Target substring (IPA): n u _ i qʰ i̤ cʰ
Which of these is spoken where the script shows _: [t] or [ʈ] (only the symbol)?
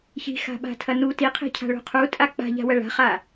t